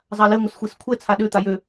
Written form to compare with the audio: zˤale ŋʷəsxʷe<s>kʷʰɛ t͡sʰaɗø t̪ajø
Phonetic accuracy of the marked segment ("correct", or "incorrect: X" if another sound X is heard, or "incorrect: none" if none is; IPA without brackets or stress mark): correct